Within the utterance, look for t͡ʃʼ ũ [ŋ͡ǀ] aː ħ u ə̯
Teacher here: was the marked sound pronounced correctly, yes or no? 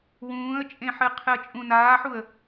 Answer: no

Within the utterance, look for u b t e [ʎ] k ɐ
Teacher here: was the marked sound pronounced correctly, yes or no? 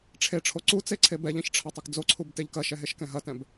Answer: yes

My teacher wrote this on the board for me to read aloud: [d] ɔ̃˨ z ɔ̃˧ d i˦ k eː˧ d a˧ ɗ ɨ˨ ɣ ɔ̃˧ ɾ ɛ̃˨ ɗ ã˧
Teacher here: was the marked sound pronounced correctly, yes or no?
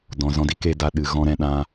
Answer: yes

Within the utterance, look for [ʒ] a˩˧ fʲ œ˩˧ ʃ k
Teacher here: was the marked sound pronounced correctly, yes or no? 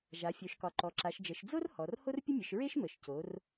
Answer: yes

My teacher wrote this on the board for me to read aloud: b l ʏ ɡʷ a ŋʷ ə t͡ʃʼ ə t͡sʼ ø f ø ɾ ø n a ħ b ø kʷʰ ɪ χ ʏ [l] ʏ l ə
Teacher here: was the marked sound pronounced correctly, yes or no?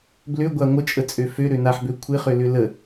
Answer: yes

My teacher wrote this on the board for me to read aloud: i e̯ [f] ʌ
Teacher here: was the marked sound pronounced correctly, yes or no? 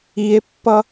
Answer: no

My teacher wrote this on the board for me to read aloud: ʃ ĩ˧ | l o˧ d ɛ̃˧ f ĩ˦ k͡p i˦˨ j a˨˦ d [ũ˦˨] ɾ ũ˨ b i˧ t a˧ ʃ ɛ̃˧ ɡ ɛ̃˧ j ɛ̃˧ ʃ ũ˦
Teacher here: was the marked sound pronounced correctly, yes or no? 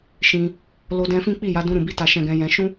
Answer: no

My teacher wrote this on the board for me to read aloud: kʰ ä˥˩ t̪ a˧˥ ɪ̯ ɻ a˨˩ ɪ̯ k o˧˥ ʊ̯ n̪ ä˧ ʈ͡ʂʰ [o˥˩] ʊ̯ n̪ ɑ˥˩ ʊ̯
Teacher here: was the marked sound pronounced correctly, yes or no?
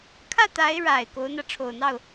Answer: no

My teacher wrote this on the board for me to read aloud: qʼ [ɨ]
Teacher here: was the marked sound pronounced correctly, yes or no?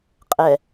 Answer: no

